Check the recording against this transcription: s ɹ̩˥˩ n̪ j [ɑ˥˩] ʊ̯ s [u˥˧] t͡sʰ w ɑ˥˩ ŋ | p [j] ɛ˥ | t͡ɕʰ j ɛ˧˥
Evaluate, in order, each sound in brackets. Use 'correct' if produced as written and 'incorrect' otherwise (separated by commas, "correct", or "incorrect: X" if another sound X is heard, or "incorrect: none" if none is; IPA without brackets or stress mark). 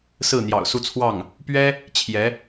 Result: incorrect: ɑ̰˨˩, correct, incorrect: ɥ